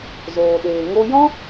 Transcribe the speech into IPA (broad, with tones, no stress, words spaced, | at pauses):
zoː˨ɗeː˨ ŋo˧jɔ̃˦